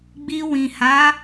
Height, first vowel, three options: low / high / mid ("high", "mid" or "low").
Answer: high